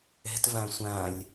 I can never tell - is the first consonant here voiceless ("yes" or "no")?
yes